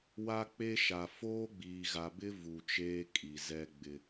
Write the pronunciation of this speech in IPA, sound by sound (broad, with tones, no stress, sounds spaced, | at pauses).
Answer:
w a˦ k͡p e˦ ʃ a˨ f oː˦ ɡ͡b iː˨ ɣ a˨ b ɪ˦ v u˨ t͡ʃ eː˦ kʼ i˨ z ɛ˦ ɡ͡b ɪ˦